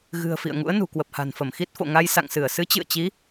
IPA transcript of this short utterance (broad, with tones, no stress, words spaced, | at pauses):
ɣɨ̤˨˩ə̯ fḭ˧˨ə̯ŋṵ˧˥ə̯ nṳ˨˩kwə˨˩p̚ha̤˨˩nfə˧˩m xi˦˥t̚fo̰˧˨ ŋa˧jsa̰˧˨ŋsɨ˧˩ə̯ sɨ˨˦t͡ɕɨ̰˧˨ə̯t͡ɕi˨˦